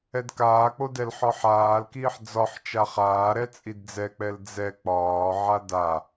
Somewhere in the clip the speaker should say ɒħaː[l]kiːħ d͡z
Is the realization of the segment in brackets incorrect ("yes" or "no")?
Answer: no